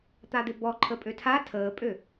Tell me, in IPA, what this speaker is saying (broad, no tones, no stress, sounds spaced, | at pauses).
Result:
t̪ a d̪ ɪ b ɔ ǃʰ ə pʼ ø tʰ a tʰ əː pʼ ø